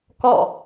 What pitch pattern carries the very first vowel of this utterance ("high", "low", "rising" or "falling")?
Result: falling